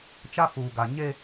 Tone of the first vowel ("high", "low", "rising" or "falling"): high